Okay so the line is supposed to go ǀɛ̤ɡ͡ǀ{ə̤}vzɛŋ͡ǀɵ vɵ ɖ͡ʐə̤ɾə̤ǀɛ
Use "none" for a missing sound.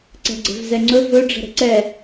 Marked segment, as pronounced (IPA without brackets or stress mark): ɛ̤